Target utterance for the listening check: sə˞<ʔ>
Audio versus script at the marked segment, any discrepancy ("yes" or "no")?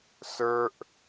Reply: no